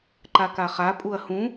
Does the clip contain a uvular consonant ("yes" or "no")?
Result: yes